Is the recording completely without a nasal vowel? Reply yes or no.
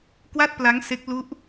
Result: yes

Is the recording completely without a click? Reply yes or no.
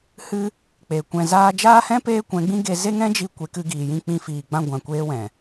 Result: yes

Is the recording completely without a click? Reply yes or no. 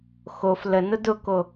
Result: yes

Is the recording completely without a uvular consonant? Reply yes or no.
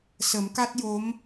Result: yes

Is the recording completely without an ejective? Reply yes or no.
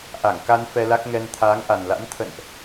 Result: yes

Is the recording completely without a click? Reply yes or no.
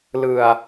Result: yes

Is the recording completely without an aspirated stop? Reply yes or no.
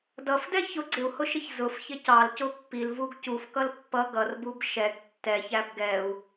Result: yes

